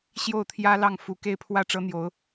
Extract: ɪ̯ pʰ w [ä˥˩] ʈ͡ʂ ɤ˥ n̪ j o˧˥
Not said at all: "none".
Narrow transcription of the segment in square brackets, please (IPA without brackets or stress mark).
ä˥˩